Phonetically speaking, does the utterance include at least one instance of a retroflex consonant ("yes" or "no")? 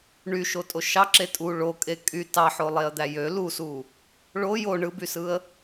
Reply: yes